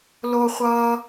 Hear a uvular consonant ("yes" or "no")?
yes